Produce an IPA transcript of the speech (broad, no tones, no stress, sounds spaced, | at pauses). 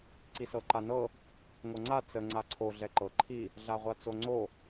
ǀ i s ɤ ǃ a n ɤ | ŋʷ ɤ ŋ͡ǀ a t͡s ə ŋ͡ǀ a ǀʰ o ɮ ɛ ǃ ɤ ǃʰ i | ɮ a ʁʷ a t͡s o ŋ͡ǀ o